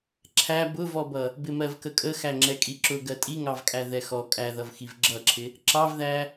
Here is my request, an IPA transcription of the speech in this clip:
ǁʰ æ b ʊ v ɔ b ʌ | b ɪ m ɜ v k ə kʼ ə x æ ŋ͡ǁ ɛ kʼ i ǁ ʊ ɡ ɜ tʼ i ŋ ɑ v kʼ æ ð ɛ x ɔ kʼ æ ð ʌ v x i v ɡ͡ǁ ʌ ǁʰ ɪ | ǁ ɑ v ð æ

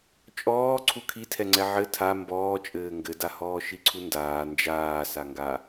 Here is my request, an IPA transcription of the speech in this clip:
t͡ʃʼ ɔː ǀʰ u kʰ i tʰ ɛ ŋ͡ǀ ɛ ʕ ɘ tʰ a m b ɔː t͡ʃʼ ɘː ŋ ɡ ɘ d a h ɔː ʃ i ǀʰ u n d aː n d͡ʒ aː s a ŋ ɡ a

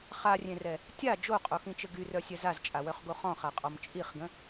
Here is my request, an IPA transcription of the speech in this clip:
χ a rʲ ẽ r ɛ | tʲ a d͡ʒ o qʼ o x ĩ t͡ʃ ə ɡ y r œ sʲ ɛ z a z t͡ʃʼ a w œ χ ɡ o χ ɔ̃ χ a qʼ ɔ m t͡ʃʼ i χ ɡ ə̃

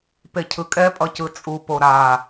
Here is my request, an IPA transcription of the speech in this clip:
p e cʰ ɯ kʼ ɛ pʼ ʌ c ɯ t͡sʼ u p o ɾ a

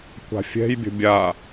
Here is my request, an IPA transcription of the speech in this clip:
kʷ a̤ fʲ ɛ̤ j bʲ ə̤ bʲ a

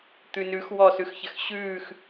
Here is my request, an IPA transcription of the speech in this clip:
t̪ ʉ n ʉ x w ɔ s ʉ x ç ɘ x ɕ ʉː x

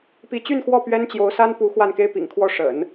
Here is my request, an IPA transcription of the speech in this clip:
p i˧˥ t͡ɕ y˥˧ n x w ɔ˥˩ p ɥ ɛ˥ n t͡ɕ j o˧˥ ʊ̯ s a˥ n p u˧˥ x w a˥˩ n k e˥ ɪ̯ p ḭ˨˩ ŋ kʰ w ɔ˥˩ ʂ ə̰˨˩˦ n

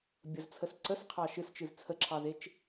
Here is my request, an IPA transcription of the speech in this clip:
bʲ ə z t͡sʰ ə s ǀ ə s qʰ ɑ ʃ ɨ s t͡ʃ ɨ z t͡sʰ ə ǁʰ ɑ z e t͡ʃ

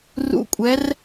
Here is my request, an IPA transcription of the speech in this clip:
r ṵ˧˥˧ kʷʼ ɛ˨˦ r

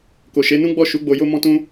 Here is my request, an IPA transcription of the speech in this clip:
k o˨ ʃ e˨˦ n ũ˦ ɡ͡b ɔ˦˨ ʃ u˨˦ ɡ͡b o˧ j o˦ m ɔ̃˦ t ũ˦

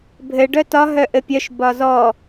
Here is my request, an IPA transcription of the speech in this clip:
bʱ ɘ ɖ œ t ɒ ɦ œ ʔ ɘ pʲ œ ʃ b ɒ z ɔ

